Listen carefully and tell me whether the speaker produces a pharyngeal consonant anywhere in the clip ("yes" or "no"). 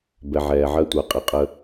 yes